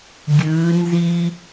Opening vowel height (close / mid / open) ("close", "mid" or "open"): close